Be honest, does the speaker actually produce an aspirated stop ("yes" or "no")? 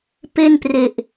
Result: no